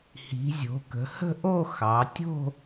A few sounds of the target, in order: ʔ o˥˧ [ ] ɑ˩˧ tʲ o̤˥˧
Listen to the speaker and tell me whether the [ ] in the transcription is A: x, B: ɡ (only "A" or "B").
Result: A